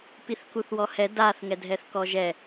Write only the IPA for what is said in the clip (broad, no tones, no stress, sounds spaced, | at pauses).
p i θ k u θ w ɔ h ɛ d a θ ŋ ɛ dʱ ɛ θ k ɔ ʒ ɛ